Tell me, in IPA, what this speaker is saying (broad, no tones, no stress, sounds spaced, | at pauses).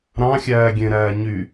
ɾ ɑ̃ xʲ æː ɡʲ ẽ ɾ æː ɲ y